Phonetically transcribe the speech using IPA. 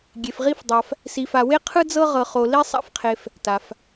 ɡʲ e˧ f ʁ i˥ f dˤ a˧ f | s i˧ f a˧ w e˥ qʰ ɯ˥ d͡z ɤ˥ ʁ ɤ˧ χ o˧ l i˥ sˤ a̰˥ f qʰ e˧ f | t a˩ f

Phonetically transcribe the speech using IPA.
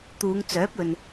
t̪ uː˨˧ ŋ t͡s œː˨˥ p̚ ɵ˨ n

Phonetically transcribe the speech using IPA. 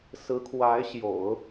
s ɹ̩˧˥ kʰ w a˧˥ ɪ̯ ɕ j o̰˨˩˦ ʊ̯

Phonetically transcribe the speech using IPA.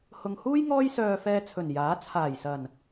h ʊ˨ ŋ h uː˥ j ŋ ɔː˥ j s œː˧ f ɛː˧ t͡sʰ ɵ˨˩ n j aː˨˥ t͡sʰ aː˨˩ j s ɐ˨˩ n

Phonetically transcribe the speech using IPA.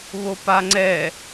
β o p a ŋ͡ǀ ɛ

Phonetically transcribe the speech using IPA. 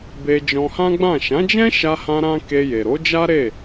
b e˧ d͡ʒ ɔ̃˧ h ã˦ ɡ͡b ã˦˨ ʃ ã˨˦ d͡ʒ ɛ̃˦ ʃ a˧ h ã˧ ɾ ã˦ k e˧ j e˨ ɾ o˨˦ d͡ʒ a˦ ɾ e˦˨

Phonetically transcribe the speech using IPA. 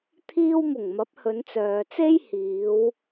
t̪ʰ iː˧ w m ʊ˨˩ ŋ m ɐ˨˥ p̚ h ɵ˨˧ n t͡s œː˨ t͡s e˥ j h iː˨˧ w

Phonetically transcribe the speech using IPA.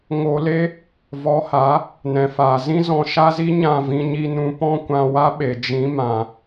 ŋ o˧ l e˦ | v ɔ˨˦ h a˨˦ | n ɛ̃˨ f aː˨ z ĩ˦ z ɔ̃˧ ʃ a˦ z i˦ ɲ ã˦˨ v ĩ˧ ɲ i˧ n ũ˧ p ɔ̃˦ kʷ ã˧ w a˦ ɓ e˨ d͡ʒ ĩ˨˦ m ã˨

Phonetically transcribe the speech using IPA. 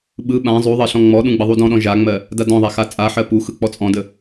ɓ ɯ ɓ ã zˤ u ðˤ ɜ ɬ ɔ̃ ŋ͡m ɔ ɗ ũ ɡ͡b ə ðˤ u d ɔ̃ ɗ ɔ̃ ʒ a ŋ͡m ɜ | d a d ɔ̃ ðˤ a x a t͡sʼ a ħ ɜ p u x ɯ k͡p ɔ t͡sʼ ɔ̃ d ə

